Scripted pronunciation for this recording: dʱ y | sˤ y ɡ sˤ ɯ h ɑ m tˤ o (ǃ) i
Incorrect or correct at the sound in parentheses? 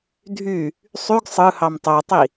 incorrect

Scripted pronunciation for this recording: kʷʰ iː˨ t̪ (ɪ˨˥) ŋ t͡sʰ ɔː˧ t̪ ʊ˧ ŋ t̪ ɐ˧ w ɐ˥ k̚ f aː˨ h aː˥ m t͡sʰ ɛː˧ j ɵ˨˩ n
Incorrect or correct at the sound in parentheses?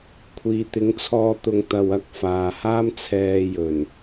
correct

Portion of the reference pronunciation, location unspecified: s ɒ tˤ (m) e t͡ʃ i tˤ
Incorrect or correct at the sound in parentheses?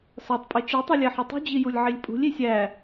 incorrect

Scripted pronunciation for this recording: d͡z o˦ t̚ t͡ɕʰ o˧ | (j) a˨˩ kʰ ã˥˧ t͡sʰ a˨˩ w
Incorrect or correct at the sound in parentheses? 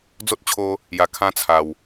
correct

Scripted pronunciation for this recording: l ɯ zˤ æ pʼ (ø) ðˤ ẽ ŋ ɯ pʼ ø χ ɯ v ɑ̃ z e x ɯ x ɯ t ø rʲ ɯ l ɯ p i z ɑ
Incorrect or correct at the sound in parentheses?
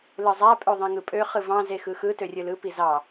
correct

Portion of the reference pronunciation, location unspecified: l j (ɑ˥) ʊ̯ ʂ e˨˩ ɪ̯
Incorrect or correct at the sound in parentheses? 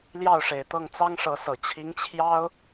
incorrect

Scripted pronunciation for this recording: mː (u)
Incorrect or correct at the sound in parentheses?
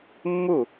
correct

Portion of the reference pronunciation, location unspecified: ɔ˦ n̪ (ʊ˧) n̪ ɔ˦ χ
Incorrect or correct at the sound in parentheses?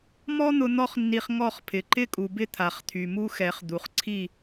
correct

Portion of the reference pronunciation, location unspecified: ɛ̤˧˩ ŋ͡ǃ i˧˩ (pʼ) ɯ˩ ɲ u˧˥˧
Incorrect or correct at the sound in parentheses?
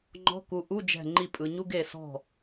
correct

